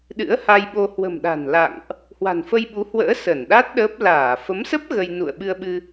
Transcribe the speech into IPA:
ɗ ɨ̰˧˥ ə̯ h a˧ j ɓ o˧ h w ə̤˨˩ m ɗ a̤˨˩ n l a̰˧˨ ŋ ʔ | h w a̤˨˩ n f ə˧ j ɓ u˨˦ h w ə̰ː˧˥ s ə˧˩ n ɗ a˦˥ t̚ ɗ əː˦˥ p̚ l aː˧˩ f ə˨˦ m s ə˦˥ p̚ ɣ ə˧ j n ṵ˧˨ ə̯ ɓ ɨ˧ ə̯ ɓ ɨ˧

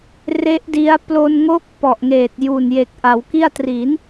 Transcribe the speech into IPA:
r e˦˥ ʔ d i˦˥ a̯ p l o˧ n ŋ o˦˥ k̚ p ɔ˨˩ ʔ ŋ eː˨˩ t̚ j uː˨˩ n j e˨˩ k̚ ʔ a˩˦ w k i˥˩ a̯ t r i˩˦ n

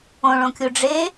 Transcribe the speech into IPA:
õ ɭ õ kʲ u ɖ͡ʐ e

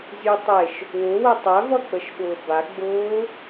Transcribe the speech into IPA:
zʲ u tˤ e ʃ | w ʊ w ə tˤ æ v ʌ k͡p ə ʃ ɓ ʊː b a ɡ͡b ʊː

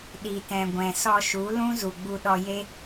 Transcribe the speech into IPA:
ɗ i˨ t ɛ̃˨ ɡʷ ɛ̃˨ s ɔ˧ ʃ u˨˦ l ũ˦ z u˨ ɡ͡b u˧ ɗ ɔ˧ j e˦

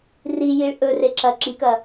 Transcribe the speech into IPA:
r i j i ɭ ʔ ɵ r e ǁ ɐ ǁ i k ɐ

